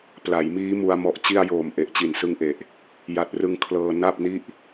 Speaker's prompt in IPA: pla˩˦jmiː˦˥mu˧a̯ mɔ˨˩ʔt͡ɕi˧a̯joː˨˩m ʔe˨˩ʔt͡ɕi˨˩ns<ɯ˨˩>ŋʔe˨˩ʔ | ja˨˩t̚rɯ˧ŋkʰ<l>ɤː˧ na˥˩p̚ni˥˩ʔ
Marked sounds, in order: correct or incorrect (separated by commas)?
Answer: incorrect, correct